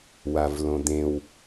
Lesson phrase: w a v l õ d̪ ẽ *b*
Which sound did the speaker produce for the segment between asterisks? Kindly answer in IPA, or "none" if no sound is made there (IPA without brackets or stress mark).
w